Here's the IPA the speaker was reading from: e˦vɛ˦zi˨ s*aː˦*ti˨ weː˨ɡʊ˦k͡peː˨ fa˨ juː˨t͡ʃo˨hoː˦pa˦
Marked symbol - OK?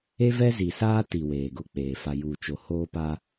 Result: yes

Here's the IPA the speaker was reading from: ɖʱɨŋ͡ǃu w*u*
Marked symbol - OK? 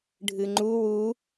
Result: yes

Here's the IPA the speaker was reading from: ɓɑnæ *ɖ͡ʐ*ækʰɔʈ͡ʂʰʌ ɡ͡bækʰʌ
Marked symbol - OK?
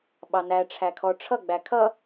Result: no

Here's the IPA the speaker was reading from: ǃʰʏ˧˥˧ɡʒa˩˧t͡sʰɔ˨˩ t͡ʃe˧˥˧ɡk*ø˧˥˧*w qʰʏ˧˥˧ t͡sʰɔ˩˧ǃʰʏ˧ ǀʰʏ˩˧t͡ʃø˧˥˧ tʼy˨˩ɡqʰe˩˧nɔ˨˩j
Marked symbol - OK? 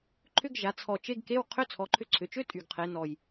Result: no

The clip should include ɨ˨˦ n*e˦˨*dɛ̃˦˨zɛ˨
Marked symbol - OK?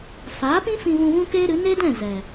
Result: no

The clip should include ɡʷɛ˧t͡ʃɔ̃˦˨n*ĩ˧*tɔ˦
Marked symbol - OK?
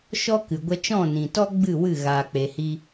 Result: no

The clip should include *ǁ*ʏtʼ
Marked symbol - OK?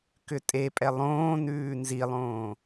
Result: no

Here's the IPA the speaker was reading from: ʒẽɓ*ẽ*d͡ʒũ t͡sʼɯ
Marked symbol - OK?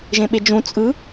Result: no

